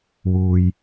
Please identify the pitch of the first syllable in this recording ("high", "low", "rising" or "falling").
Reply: low